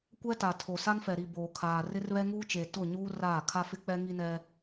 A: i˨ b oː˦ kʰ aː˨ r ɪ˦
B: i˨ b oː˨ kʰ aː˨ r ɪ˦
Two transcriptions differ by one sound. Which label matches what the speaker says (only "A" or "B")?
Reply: B